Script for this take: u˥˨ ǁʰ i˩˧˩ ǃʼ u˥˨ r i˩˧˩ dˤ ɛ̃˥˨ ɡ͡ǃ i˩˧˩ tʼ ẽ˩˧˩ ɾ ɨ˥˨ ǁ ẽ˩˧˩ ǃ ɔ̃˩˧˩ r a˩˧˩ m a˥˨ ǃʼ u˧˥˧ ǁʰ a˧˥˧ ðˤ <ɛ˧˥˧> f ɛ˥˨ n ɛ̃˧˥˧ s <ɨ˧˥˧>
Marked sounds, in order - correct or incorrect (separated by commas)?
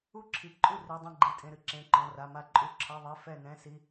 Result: correct, incorrect